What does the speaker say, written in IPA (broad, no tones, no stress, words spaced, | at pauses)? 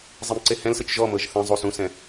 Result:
zˤemǀehɛ̃lsɯt͡ʃ ʒɔmɤʒ θɛ̃zˤu sũsɛ̃